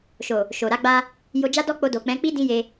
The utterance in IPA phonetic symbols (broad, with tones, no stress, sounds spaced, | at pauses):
ʃ o˨ | ʃ o˨ ɾ a˧ ɡ͡b a˧ | j o˧ d͡ʒ a˦ d ɔ˦ k͡p o˧ d o˨ k͡p ɛ̃˨˦ k͡p i˦ d ĩ˦ j e˧